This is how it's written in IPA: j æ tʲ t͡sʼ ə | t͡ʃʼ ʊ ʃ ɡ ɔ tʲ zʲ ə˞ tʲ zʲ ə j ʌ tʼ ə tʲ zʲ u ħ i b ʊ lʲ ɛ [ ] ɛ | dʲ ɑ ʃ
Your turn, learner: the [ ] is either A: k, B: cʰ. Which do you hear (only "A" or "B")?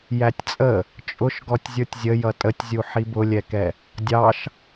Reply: A